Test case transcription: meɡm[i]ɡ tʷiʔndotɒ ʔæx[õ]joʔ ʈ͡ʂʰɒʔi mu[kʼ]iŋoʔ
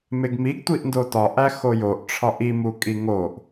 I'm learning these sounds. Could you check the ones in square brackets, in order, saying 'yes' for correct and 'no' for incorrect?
yes, no, yes

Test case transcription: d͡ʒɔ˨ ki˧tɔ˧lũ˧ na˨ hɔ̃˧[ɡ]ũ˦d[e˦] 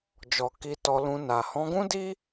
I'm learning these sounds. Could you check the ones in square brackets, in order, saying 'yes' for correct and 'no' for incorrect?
yes, no

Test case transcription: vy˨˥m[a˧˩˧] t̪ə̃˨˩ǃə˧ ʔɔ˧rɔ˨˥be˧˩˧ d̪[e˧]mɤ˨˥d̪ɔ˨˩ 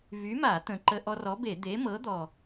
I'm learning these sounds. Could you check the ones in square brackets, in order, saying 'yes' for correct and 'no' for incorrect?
yes, no

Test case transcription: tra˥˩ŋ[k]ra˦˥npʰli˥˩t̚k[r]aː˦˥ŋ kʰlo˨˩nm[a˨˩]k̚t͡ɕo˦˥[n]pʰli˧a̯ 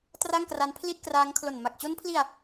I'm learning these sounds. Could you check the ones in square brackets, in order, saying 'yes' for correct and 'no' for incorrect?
yes, yes, yes, yes

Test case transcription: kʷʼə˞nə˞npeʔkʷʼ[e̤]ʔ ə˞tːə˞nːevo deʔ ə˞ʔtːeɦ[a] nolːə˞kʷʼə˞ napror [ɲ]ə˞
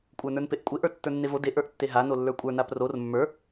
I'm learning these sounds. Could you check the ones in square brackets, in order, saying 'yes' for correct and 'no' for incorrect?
no, yes, no

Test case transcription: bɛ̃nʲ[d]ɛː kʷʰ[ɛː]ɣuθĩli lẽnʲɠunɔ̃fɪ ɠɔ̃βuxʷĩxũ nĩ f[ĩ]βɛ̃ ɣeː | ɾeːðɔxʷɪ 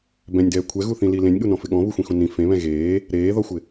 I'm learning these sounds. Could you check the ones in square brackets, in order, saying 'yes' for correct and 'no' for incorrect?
yes, no, no

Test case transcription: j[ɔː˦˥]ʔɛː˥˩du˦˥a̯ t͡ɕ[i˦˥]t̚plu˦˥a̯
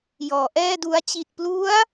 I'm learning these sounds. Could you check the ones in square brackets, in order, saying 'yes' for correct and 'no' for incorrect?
no, no

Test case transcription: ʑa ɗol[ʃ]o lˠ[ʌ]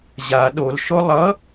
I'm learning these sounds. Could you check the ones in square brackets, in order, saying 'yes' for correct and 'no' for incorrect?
yes, yes

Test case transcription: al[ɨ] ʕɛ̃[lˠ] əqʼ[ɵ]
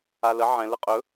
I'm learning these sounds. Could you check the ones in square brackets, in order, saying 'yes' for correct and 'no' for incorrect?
no, no, yes

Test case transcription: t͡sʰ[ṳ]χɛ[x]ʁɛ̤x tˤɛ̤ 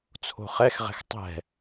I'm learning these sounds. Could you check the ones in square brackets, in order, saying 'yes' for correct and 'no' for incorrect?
no, yes

